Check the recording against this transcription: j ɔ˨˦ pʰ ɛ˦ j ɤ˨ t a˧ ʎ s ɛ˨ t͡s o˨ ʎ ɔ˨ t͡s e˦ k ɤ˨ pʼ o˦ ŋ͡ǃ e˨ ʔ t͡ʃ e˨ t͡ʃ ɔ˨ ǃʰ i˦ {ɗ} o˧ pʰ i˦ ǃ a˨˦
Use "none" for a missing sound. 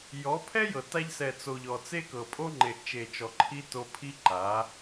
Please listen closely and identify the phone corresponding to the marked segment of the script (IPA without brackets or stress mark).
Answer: t